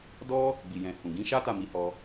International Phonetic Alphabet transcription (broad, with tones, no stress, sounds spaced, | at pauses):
d ɔ˦ | b i˨ j ɛ̃˨ h ũ˨ ɡ ĩ˨˦ ʃ a˦ t a˦˨ m i˨˦ h ɔ˧